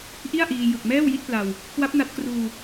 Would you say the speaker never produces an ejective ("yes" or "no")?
yes